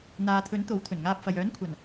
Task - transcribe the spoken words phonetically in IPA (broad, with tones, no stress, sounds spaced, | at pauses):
n̪ aː˨ t̪ʰ ɵ˨˥ n t̪ o˨˥ w t̪ʰ ɵ˨˩ n ŋ aː˧ p̚ f ɐ˨ j œː˨˥ n kʷʰ ɐ˨˩ n